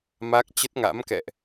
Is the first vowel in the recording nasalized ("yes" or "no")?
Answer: no